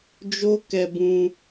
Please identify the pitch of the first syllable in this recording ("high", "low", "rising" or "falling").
high